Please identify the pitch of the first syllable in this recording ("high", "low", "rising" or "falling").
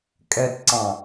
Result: low